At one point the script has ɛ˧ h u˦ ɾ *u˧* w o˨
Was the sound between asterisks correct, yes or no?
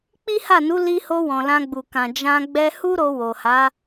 no